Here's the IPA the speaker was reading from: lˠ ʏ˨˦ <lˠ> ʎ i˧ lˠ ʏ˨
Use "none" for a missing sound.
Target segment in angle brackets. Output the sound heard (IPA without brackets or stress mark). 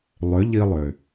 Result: none